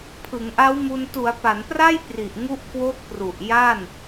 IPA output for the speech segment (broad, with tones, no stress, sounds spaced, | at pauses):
pʰ ɯ˩˦ ŋ ʔ a˦˥ w m u˧ n t u˩˦ a̯ p a˩˦ n p r a˥˩ j p r i˨˩ ʔ ŋ u˦˥ ʔ k w o˦˥ k̚ p r u˨˩ ʔ j a˥˩ n